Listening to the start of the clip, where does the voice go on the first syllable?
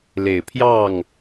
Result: low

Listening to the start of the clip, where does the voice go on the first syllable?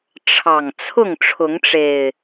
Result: low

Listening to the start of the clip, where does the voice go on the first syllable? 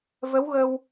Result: rising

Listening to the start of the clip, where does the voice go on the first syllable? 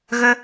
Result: high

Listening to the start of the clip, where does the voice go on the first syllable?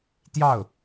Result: falling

